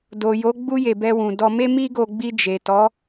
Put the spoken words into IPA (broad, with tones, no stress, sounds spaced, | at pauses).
d o˨ j o˨˦ ɡ͡b u˧ j e˨ b ɛ˧ w ũ˨ d ɔ˧ m e˦ m i˦ ɡ o˧ ɡ͡b i˧ d͡ʒ e˨ t ɔ˨˦